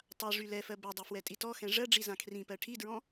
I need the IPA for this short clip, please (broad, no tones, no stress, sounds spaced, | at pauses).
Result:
tˤ a ʐ y l ɛ f ɜ b ɛ dˤ ø f w ɛ tʼ i t ɔ x ɛ̃ ʐ ɜ ɖ͡ʐ i z ã kʰ r ĩ p ɜ ʈʰ i d ɹ ɔ̃